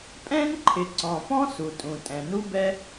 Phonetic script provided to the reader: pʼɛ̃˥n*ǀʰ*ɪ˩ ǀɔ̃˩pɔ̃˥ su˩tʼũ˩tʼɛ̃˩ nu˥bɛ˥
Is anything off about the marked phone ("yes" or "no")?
yes